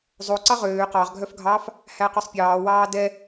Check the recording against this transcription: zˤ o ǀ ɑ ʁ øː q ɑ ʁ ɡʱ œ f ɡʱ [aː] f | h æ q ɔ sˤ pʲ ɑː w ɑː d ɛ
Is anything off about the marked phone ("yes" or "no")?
yes